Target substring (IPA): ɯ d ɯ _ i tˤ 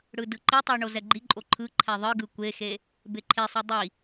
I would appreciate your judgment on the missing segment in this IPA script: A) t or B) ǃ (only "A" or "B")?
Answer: B